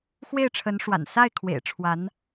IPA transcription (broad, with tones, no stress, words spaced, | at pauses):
xwe˥˩ɪ̯ʈ͡ʂʰə˧˥nʂwa̰˨˩n sa˥˩ɪ̯ kʰwḛ˨˩ɪ̯ʈ͡ʂʰwa˧˥n